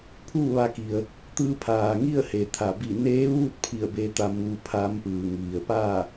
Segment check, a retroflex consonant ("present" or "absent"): absent